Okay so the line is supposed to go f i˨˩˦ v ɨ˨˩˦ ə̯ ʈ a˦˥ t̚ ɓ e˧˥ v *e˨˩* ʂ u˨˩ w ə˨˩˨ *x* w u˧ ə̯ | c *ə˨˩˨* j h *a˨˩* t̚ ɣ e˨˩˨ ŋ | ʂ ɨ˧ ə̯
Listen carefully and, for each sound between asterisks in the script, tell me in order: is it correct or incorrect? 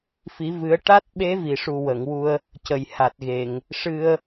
incorrect: i˨˩, incorrect: ŋ, correct, correct

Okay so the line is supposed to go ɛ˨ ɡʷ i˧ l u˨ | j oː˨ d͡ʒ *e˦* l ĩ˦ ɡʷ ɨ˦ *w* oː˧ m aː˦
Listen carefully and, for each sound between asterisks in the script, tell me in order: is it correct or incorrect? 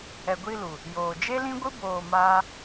correct, incorrect: b

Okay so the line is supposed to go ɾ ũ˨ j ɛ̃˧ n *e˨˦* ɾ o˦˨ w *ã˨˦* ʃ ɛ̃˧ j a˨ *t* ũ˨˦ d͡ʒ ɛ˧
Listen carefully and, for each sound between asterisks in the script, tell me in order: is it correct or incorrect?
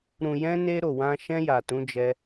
incorrect: e˦, incorrect: ã˧, correct

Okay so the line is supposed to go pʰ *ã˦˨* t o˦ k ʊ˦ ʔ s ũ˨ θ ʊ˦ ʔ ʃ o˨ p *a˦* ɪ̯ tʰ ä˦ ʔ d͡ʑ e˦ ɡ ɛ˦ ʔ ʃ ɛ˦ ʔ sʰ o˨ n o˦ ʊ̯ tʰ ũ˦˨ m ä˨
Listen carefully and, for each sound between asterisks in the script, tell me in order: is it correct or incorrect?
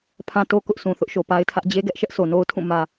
incorrect: ã˦, correct

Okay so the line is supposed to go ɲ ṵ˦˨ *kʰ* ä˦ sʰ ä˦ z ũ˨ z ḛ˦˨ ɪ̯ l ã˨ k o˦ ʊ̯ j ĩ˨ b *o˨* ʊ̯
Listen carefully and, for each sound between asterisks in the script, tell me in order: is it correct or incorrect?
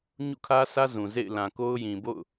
correct, incorrect: o̰˦˨

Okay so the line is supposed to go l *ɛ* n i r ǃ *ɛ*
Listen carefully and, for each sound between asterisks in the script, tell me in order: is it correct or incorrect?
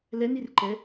correct, correct

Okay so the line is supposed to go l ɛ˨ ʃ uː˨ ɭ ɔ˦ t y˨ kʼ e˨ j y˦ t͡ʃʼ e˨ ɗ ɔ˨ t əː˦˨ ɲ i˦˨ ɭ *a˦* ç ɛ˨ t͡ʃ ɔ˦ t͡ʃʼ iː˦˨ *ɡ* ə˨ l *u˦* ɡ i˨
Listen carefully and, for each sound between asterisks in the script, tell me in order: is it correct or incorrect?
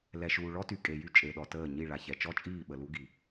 incorrect: a˨, incorrect: ɓ, correct

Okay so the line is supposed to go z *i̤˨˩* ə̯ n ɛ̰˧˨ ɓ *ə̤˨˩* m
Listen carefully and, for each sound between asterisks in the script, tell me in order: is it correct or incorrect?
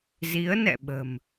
incorrect: i˨˦, correct

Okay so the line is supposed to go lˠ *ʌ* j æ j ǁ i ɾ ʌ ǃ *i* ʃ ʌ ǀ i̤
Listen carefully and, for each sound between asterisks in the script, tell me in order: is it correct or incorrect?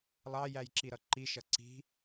incorrect: ɑ, correct

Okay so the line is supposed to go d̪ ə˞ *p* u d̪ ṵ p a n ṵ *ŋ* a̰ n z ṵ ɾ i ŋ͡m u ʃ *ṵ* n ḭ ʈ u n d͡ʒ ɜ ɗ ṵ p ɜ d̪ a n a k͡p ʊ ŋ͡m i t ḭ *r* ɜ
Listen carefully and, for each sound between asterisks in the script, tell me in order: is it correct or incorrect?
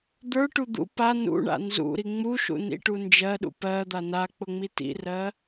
incorrect: ʈ, incorrect: ɳ, correct, correct

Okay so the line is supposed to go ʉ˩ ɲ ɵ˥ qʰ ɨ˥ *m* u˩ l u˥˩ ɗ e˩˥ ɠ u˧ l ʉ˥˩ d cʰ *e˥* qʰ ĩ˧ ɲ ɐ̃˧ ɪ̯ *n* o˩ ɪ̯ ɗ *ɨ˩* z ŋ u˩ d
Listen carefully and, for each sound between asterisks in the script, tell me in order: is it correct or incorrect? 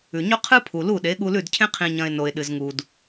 incorrect: pʰ, incorrect: ẽ˥, correct, correct

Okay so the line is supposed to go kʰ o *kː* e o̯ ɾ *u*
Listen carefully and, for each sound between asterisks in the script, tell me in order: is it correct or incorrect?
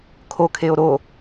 incorrect: kʰ, incorrect: o

